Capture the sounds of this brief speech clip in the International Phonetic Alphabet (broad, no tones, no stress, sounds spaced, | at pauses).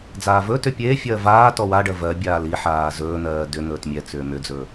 d͡z aː v ɵ t ʏ pʲ eː fʲ ɜː v aː t ɔ w a ɖ ɜ v ɜ bʲ aː l i ħ aː z ɵː n̪ ɜː d ʏ n̪ ɵː t mʲ ɛ t͡s ʏː m ʏ d͡z ɵː